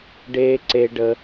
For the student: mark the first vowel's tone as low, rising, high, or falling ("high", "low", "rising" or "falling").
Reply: high